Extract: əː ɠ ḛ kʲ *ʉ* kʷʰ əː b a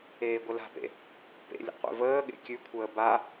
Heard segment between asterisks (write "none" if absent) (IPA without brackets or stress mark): ʉ